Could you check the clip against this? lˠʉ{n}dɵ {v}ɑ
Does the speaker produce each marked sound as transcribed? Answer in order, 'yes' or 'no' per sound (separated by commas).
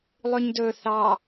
no, no